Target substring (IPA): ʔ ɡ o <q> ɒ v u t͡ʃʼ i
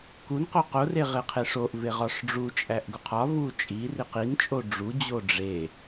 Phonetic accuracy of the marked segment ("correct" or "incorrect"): incorrect